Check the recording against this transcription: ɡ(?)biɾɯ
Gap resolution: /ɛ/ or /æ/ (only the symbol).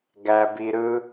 æ